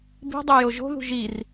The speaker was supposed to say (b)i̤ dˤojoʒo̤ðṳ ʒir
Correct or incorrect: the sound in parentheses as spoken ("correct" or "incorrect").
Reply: correct